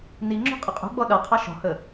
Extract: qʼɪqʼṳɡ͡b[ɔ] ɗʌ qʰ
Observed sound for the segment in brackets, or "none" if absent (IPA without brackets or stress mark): ɔ